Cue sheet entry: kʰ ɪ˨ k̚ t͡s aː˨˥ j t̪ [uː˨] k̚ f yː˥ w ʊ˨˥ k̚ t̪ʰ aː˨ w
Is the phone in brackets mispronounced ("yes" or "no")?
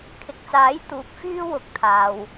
no